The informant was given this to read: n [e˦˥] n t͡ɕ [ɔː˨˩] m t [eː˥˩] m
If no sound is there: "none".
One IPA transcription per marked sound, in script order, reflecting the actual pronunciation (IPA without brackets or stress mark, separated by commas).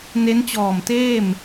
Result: e˦˥, ɔː˨˩, eː˥˩